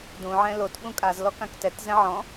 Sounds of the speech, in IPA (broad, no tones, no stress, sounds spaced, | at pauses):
d ũ ʕ ɛ̃ l o t ɓ ũ kʼ a z l ɔ k ã k t ɛ t z ɛ̃ ʕ ɔ̃